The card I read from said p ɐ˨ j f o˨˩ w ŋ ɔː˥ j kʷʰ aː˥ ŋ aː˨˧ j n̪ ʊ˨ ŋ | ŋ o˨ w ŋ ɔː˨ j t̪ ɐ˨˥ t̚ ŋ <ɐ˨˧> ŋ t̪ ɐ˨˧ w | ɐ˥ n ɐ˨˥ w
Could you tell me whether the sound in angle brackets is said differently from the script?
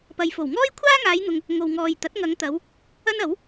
no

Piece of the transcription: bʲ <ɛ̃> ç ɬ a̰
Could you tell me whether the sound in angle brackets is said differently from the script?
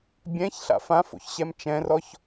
no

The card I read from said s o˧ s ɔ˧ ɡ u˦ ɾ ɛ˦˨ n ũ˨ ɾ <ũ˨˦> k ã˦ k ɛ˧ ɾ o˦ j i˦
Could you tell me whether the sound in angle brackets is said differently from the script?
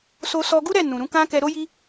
no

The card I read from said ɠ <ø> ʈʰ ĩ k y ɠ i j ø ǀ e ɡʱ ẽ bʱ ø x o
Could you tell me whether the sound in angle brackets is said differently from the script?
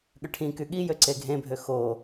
no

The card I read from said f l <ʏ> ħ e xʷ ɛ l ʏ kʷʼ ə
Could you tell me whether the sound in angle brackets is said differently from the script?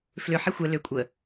no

